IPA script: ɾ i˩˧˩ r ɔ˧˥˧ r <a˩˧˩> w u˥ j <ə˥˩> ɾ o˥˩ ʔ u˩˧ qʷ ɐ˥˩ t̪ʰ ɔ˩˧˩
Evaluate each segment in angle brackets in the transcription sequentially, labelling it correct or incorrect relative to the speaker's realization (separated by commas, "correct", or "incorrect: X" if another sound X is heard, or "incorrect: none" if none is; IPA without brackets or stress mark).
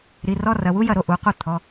incorrect: ɐ˩˧˩, incorrect: ɐ˥˩